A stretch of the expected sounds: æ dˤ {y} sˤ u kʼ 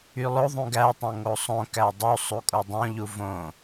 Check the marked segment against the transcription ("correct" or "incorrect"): incorrect